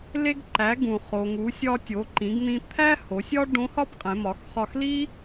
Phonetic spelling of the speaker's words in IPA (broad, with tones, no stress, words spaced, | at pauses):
le˧ɡǃæ˩˧ ɡũ˩ χo˩ŋu˩˧ sʲɒ˧tʲo˩˧ǃĩ˩˧ɡn̪ĩ˧ t̪ʰæ˥ ho˩˧sʲɒ˥ ɖõ˧˥hɒ˥pqʼẽ˩˧ mɒ˩˧x χɒ˧xli˥